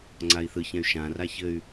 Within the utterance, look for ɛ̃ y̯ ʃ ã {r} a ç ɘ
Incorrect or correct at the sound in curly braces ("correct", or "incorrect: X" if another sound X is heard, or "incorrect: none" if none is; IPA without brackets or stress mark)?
correct